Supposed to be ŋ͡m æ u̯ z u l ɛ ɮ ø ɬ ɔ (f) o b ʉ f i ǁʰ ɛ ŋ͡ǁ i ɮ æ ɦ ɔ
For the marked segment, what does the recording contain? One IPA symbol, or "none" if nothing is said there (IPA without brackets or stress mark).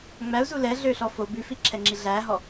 f